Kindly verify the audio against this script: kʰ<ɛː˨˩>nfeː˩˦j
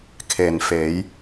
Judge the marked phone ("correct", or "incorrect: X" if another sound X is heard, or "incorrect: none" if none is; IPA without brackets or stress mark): incorrect: eː˨˩